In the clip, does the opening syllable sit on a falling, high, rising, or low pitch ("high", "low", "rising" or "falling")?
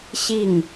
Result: falling